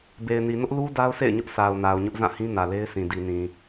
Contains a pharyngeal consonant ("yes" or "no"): no